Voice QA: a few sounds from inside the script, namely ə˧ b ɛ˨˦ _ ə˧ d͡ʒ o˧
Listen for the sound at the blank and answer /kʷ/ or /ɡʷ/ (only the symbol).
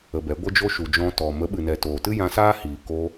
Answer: ɡʷ